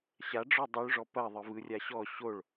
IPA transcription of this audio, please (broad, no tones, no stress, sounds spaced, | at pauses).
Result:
ɕ a ɖ͡ʐ ɔ dˤ o ɭ ʐ ɔ p ɐ ðˤ ɯ v ɯ rʲ a ɕ ɔ ɕ o ɭ